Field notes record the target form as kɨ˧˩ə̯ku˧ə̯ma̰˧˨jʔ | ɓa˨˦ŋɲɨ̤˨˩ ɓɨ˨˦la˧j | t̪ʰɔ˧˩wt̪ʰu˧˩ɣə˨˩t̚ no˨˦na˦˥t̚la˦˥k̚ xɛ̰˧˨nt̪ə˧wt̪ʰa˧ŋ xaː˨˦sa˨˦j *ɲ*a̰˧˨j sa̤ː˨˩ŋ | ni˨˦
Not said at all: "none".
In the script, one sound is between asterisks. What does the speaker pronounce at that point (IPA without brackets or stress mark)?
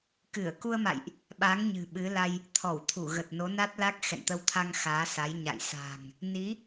ɲ